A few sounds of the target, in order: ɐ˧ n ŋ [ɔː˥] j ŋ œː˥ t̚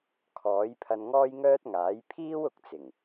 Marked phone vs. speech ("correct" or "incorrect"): correct